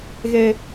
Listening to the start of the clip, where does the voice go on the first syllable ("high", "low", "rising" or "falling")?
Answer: high